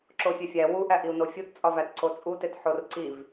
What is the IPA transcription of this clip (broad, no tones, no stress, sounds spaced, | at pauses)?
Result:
ǁ o fʲ e fʲ æ w u ʔ æ ʔ i u̯ n o fʲ u t t͡sʼ ɒ v æ t ǀ o t͡sʼ u t e t ħ o r ǀ i v